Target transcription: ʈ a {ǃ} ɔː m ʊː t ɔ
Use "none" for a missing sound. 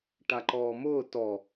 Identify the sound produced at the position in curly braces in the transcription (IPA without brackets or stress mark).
ǃ